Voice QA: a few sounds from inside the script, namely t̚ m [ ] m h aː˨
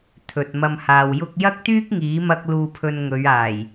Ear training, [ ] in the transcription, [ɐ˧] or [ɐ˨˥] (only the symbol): ɐ˧